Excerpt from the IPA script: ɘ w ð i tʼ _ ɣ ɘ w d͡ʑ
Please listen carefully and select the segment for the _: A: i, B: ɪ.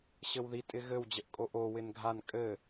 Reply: B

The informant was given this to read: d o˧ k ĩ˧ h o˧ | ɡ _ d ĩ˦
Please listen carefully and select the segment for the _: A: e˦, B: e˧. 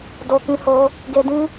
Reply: B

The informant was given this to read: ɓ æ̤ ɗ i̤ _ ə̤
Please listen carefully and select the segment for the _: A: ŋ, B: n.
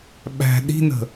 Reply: B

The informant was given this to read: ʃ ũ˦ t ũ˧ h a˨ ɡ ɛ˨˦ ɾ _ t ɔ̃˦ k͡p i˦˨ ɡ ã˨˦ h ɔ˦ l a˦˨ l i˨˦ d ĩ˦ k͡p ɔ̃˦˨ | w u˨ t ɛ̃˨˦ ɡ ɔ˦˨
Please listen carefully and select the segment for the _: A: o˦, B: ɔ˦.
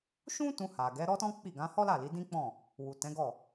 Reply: B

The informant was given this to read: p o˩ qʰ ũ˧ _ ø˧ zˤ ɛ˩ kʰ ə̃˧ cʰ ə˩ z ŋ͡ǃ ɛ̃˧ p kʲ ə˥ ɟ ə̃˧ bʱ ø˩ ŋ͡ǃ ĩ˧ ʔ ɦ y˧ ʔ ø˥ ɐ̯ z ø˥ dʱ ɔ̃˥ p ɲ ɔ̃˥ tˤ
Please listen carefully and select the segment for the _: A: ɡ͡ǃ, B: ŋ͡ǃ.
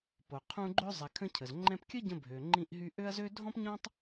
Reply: A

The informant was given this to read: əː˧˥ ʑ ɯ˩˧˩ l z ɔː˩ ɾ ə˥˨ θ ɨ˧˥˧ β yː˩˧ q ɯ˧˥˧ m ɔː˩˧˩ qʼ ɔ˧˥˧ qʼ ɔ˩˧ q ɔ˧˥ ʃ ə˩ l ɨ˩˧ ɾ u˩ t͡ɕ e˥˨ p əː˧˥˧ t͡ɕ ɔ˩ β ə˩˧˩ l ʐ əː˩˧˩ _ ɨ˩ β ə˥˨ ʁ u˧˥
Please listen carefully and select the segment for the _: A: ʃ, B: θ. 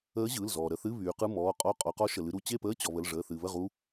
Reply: B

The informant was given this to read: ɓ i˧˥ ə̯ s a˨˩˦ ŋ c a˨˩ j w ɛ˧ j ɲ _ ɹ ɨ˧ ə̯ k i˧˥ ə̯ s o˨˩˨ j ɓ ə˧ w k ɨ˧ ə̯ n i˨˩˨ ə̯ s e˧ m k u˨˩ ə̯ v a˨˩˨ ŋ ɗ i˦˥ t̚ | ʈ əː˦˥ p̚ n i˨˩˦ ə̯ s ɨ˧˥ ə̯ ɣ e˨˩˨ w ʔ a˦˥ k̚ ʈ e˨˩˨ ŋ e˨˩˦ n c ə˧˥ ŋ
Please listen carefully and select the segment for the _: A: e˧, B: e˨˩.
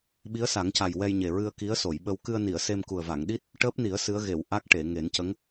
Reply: B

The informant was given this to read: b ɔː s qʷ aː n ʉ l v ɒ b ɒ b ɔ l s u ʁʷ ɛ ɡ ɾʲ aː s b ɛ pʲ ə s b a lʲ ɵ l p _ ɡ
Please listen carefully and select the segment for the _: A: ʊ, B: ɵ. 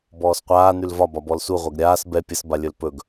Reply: B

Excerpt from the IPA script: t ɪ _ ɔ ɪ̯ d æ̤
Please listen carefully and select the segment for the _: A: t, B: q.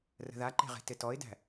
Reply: A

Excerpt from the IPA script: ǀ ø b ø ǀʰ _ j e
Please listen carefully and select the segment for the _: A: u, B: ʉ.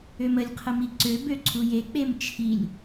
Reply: A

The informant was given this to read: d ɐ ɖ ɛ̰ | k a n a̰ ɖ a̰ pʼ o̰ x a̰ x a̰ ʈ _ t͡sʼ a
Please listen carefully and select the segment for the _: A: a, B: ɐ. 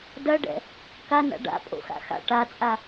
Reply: A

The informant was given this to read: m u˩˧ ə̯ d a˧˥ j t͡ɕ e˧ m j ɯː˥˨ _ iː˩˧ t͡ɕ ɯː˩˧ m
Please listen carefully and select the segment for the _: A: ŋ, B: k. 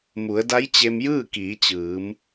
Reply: B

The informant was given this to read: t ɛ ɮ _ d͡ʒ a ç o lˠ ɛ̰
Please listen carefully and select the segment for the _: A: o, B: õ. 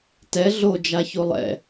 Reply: A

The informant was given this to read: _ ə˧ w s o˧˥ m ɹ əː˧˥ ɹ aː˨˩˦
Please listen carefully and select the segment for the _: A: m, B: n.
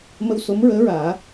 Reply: A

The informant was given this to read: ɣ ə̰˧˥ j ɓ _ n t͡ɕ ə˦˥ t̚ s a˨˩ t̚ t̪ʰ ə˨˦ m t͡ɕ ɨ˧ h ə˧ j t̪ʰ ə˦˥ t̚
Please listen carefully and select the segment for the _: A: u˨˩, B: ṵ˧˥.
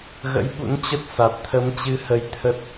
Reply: B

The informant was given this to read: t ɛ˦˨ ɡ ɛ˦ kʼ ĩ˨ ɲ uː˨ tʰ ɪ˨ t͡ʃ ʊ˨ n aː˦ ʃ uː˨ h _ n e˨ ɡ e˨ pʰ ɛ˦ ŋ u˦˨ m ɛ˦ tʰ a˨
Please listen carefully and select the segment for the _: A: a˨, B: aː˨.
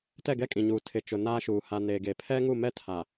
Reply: A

